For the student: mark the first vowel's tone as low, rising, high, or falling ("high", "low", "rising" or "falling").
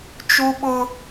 high